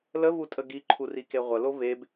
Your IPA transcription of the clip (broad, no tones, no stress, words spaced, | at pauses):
ləvutʼə ɡiǃʰurike ʁʷəlo veb